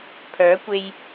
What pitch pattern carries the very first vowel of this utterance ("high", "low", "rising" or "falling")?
rising